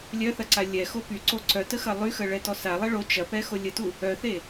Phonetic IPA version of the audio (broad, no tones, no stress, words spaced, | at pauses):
lʲœθɐ ǀalʲɛxo pyǀo ǀœtə xɐlˠyxə ɭɛtɔsalˠɛ ɭo t͡ʃɐ pɛxolʲətu | œθe